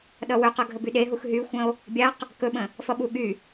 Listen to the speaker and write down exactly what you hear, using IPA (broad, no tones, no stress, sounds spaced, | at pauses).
ɗ ʌ w ɵ q ʌ ɡʱ ə b y ɗ e ɦ u x ɦ y xʷ ə̃ o̯ | bʲ a q | k ɵ ɓ ə̃ | f ʌ ɓ u ɠ y